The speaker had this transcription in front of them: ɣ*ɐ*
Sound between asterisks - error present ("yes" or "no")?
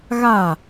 yes